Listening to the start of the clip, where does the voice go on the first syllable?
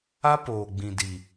high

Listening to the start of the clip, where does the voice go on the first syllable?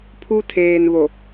high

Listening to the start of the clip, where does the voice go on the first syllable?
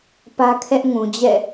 high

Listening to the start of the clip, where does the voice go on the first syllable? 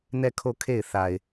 falling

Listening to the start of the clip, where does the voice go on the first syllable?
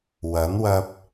rising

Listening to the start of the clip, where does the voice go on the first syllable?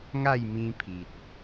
falling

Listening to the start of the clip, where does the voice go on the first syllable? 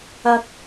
high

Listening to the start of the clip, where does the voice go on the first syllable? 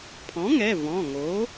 rising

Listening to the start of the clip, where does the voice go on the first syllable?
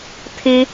high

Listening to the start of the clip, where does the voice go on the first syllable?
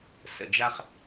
low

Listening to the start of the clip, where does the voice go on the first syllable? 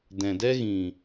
low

